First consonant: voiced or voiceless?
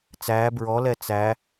voiceless